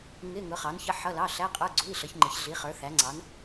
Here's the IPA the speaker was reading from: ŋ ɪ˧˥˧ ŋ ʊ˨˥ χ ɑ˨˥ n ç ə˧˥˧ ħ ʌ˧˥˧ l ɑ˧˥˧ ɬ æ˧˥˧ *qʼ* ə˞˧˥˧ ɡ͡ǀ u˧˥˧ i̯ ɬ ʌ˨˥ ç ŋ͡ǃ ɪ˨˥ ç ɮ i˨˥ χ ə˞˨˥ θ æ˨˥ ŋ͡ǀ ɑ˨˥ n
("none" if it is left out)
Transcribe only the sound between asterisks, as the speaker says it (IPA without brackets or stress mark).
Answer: qʼ